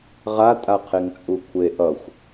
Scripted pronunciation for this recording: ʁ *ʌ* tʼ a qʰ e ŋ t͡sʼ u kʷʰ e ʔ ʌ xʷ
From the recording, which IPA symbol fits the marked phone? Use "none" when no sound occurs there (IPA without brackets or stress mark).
a